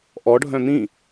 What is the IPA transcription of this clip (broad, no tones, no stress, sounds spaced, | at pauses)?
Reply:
ʔ ɔ ɖʱ œ̃ n̪ ĩ